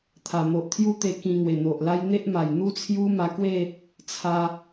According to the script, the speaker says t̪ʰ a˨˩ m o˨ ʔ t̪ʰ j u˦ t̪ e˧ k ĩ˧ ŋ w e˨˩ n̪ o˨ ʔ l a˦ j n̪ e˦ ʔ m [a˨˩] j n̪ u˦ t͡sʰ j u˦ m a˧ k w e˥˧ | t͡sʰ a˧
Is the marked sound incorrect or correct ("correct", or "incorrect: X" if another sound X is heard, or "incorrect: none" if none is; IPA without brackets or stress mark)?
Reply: correct